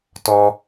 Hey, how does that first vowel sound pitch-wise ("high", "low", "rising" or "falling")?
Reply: high